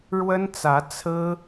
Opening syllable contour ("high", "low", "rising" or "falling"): high